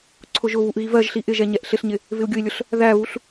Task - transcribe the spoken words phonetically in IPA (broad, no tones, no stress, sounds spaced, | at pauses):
ǀʰ ʊ ʒ ʊ β u ʔ ɣ i v ɜ ʒ ɬ i ʔ ɪ ʒ ɛ ɲ ɛ ʔ ɬ ɪ ɬ ɲ ɪ | v ɪ u̯ ɡʲ ʊ i̯ lʲ ʊ ɬ | ð æ β u ɬ